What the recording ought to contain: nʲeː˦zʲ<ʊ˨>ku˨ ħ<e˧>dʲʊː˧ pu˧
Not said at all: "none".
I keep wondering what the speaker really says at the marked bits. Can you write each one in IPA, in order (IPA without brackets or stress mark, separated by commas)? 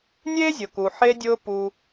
ʊ˨, e˧